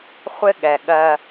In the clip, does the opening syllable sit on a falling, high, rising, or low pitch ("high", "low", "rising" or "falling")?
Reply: high